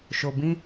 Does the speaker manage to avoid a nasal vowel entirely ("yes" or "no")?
no